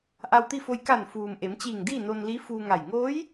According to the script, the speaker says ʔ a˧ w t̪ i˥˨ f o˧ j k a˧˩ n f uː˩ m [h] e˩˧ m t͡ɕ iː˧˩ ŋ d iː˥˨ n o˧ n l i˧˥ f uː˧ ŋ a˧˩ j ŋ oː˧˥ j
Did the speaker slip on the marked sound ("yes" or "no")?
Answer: yes